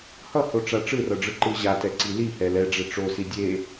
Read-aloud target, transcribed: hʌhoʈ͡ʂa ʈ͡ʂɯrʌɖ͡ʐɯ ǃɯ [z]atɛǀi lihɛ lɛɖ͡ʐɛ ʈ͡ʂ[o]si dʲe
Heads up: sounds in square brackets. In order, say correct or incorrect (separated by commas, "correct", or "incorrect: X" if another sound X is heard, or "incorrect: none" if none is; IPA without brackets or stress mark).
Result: incorrect: ʑ, correct